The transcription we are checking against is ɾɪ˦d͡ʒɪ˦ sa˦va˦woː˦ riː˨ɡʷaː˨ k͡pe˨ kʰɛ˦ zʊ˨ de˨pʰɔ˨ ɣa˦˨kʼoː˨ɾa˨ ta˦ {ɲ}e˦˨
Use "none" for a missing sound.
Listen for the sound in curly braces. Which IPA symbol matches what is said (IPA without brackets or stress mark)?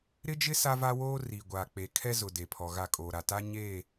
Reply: ɲ